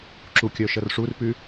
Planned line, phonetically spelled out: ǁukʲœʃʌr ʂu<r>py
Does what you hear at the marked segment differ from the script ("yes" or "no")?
no